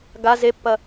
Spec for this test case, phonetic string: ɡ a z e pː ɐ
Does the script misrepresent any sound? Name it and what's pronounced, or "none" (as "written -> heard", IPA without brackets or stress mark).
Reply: none